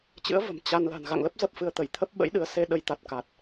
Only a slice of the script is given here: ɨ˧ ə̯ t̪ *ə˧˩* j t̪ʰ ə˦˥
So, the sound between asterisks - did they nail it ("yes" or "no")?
yes